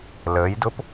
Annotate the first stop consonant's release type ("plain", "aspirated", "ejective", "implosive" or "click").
plain